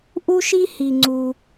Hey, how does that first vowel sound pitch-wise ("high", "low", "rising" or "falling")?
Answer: high